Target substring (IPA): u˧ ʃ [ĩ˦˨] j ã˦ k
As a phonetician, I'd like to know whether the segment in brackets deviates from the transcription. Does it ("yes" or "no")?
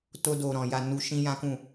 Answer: yes